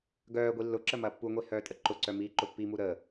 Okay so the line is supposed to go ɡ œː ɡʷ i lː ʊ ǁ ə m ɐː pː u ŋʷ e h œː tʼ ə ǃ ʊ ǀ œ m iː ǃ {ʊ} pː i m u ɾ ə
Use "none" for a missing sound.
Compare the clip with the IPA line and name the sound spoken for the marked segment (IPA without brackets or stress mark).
ʊ